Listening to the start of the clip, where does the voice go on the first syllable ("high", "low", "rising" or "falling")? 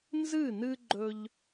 falling